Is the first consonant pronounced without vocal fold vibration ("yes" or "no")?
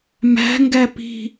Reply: no